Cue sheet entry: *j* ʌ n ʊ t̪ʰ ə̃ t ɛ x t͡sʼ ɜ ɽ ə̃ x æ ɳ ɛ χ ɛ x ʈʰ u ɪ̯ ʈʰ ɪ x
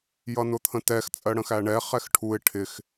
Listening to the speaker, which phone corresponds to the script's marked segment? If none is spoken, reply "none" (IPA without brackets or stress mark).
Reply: j